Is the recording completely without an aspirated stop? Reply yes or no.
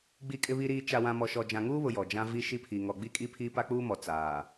no